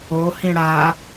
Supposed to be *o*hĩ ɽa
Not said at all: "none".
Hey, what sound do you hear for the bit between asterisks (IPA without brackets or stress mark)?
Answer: o